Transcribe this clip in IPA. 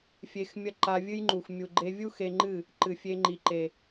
fʲe˧xmʲɐ˦ ǃa˧vʲɨ˦jŋ͡ǃu˨x mʲu˨ɡ͡ǃe˧vʲu˦ xe˧ŋ͡ǃɨ˦˨ | ǃɨ˨fʲe˧ŋ͡ǃi˨ ǃe˨

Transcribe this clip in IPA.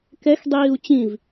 kɛxdˤiːu̯ t͡ɕĩv

